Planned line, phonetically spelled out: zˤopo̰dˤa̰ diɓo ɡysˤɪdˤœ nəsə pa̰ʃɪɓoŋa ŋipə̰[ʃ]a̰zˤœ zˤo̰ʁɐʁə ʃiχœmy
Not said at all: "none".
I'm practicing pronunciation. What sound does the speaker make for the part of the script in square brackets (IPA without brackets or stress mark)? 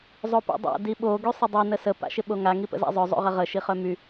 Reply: z